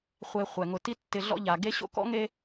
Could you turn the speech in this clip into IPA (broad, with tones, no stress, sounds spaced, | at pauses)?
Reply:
χʷ e˨ χʷ ɛ˩ ŋ ʊ˨ t i˦ tː ɪ˨ ɮ ɔ̰˦ ʎ a˩ ɡ e˦ ɕ o̰˦ k ɔ̰˥ ŋ e˦